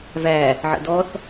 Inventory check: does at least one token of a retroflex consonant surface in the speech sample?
no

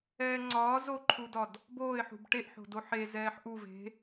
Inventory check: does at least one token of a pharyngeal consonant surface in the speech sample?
yes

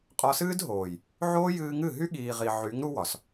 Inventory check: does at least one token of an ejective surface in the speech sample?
yes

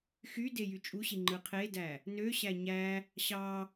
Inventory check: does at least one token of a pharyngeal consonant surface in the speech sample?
no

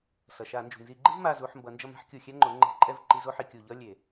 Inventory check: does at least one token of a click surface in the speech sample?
yes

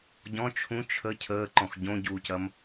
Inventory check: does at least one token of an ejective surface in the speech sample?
no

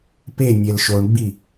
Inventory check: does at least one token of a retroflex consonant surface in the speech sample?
yes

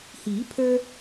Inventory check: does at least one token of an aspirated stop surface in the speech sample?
yes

